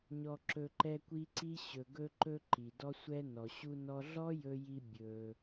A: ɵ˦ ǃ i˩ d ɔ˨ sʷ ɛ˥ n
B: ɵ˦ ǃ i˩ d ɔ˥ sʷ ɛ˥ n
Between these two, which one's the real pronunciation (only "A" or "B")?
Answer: B